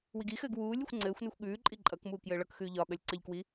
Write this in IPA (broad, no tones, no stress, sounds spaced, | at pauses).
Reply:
w i ɡ i x ɘː ɡ w uː lʲ u xʷ ŋ͡ǀ ɘː xʷ n ʉ xʷ ɠ ʉː ǃʼ i ǃʼ ʌ k m uː k j ɘː ɭ ʌ k x ʉː ʎ ɒ ɠ ʌ lʲ ǀ ɘ ʎ k w i